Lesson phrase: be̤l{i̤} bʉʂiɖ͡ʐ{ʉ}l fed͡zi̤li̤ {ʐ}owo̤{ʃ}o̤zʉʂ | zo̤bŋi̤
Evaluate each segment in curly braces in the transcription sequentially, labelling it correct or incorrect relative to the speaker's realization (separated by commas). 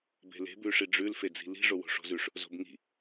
incorrect, correct, correct, incorrect